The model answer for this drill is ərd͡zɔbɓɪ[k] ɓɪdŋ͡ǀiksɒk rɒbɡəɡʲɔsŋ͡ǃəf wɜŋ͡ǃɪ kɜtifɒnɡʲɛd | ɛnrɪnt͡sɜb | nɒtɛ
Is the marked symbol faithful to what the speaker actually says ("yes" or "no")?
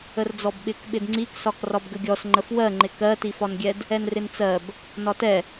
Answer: yes